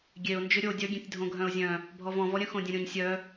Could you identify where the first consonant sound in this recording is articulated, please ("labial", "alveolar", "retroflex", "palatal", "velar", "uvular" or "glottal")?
velar